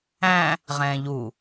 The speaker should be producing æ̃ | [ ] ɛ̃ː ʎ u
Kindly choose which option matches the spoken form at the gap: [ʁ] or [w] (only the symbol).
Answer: ʁ